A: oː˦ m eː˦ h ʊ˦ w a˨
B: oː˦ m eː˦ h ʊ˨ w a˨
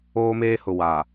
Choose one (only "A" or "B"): B